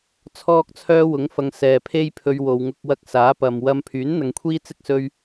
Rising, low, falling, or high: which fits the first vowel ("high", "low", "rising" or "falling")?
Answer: high